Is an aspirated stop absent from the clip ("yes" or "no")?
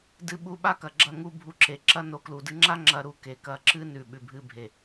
yes